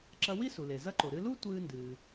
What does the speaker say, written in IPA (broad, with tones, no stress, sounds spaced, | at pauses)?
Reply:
ǁ ɐ˧ w i˥ s u˩ l e˩ z ɐ˧ ǃ o˩ ɾ ɨ˧ l u˥ tʷ ɨː˧ n d ɨː˩